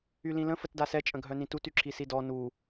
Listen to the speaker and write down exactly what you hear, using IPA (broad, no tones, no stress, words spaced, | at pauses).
ylĩlə̃ fətdasɛ t͡ʃʼə̃ɡʱœnĩtut yǁʰisidɔ nu